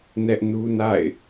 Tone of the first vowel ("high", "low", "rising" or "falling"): high